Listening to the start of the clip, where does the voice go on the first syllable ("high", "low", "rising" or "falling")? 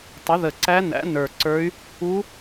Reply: rising